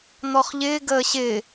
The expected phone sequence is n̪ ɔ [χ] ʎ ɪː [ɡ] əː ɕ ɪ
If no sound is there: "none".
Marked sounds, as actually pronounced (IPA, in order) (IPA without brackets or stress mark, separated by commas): χ, ɡ